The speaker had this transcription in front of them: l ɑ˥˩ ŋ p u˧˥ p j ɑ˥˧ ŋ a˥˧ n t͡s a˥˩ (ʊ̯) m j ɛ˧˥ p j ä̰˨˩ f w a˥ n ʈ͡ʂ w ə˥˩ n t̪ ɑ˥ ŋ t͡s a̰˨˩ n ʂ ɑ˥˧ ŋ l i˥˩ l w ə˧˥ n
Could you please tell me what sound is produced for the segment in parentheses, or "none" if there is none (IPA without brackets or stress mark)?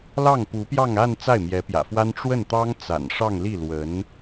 ɪ̯